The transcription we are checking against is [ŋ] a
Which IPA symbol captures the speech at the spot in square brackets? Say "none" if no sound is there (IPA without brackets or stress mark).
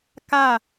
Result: k